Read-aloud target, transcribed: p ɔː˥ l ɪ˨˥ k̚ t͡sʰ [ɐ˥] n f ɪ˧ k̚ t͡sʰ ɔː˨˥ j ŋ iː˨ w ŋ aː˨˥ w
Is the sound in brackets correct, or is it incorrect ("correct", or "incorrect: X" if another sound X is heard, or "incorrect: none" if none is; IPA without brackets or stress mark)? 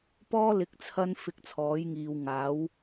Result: correct